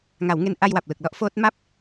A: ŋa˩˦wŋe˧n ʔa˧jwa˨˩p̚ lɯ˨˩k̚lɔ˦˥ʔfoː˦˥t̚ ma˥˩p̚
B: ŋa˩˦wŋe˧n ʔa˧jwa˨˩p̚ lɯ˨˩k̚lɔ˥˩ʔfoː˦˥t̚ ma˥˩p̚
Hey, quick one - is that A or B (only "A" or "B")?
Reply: A